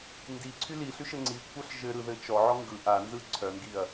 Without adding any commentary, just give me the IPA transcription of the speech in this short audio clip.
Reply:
ndiǀʰy liɬyʃɘ ŋ͡ǀikʷʰœɬ ʒɘɾɯðɘ t͡ʃɔʕɔ ŋɡɯ ʔanzɯ ǀʰœŋɡiɐ̯

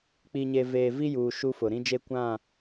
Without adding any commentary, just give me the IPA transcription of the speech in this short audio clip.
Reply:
k͡pi˨ɲe˨ veː˨vi˦juː˨ ʃu˦fʊ˨ ɾĩ˦d͡ʒe˦ kʷã˦˨

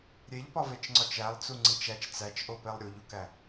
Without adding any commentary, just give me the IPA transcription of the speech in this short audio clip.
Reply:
ɾʲeʎpɒvet͡ʃŋ͡ǀɒt͡ʃ ælˠt͡suŋ͡ǀit͡ʃ æt͡ʃ t͡sæt͡ʃʔopelˠ ɾʲuʎukæ

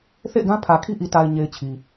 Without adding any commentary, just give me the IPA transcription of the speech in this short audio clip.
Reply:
θḛ˦˨ɪ̯ɡã˦pʰä˨kʰi˦ ʔi˨ta˨ɪ̯ɲe˨ɪ̯ t͡ɕʰi˨

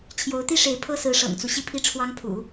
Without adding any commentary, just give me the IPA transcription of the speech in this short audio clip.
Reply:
t͡ɕʰjo˧˥ʊ̯t̪i˥ʂe˧˥ɪ̯ pʰɤ˥sɹ̩˧˥ʂɤ̰˨˩ŋt͡su˦ ɕi˥˧pʰi˥˩ʈ͡ʂʰwɑ˥ŋpʰṵ˨˩˦

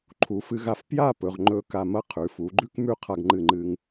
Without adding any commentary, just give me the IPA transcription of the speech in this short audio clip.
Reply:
ǃʰu˩˧fɨ˧ɣa˧f pja˥˧ pɵ˩˧ʁŋ͡ǃɵ˧ka˧˩mɐ˥ qʰʉ˩˧fu˩˧ɡ͡ǃʉ˥k mʉ˥ qʰa˧ɡŋ͡ǃɨ˧˩ŋ͡ǃɨ˧ŋ

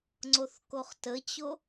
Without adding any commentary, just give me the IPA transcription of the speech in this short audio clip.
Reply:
ŋ͡ǀoθkoχtət͡ɕo

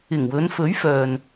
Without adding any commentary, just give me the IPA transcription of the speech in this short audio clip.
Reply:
ɪ˨˩ŋwɵ˨˧n fɵ˨˥ɥfœː˨n

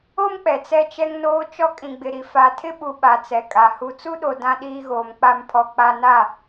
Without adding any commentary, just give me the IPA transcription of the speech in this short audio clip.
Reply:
o˦m k͡pɛ˨t͡sɛ˦t͡ʃɛ˦ŋnoː˦ t͡ʃɔ˦kʼĩ˨ɡ͡bɪ˨ɾi˨ fa˨tʰɪ˦ɓu˨ ɓa˨t͡sɛ˨kʼa˨ hu˨t͡su˦ɗo˨ dã˦ɗiː˦ɣoː˨m k͡pa˦˨mpʰɔ˨ k͡pa˦ na˦˨

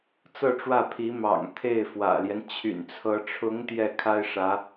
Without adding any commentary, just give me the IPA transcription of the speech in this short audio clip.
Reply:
t͡sɤ˥˧ʈ͡ʂwä˥˩pʰi˧˥ mɑ̰˨˩ŋ t̪ʰe˥˩ɪ̯fwä̰˨˩ljɛ˦n t͡ɕʰy̰˨˩nt͡sʰɤ˧˥ ʈ͡ʂʰʊ˧˥ŋ t̪jɛ˥˩kʰa˥ɪ̯ʂä˧˥

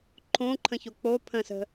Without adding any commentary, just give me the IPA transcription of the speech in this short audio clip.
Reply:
ǃʰõǃʰə̃ço k͡po pʰə̃sə̤

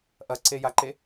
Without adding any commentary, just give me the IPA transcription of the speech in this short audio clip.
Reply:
ʔɐǀejaǃe

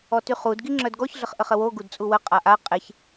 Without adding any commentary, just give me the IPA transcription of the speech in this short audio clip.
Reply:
ɔtyχud ɡiŋ͡ǁœdɡɔç ɮəχʔəχəwo ɡudt͡sʼuwə qʼaʔa qʼeç

